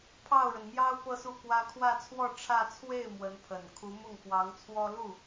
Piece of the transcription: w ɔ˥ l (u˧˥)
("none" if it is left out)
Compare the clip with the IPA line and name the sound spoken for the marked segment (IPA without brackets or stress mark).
u˥˩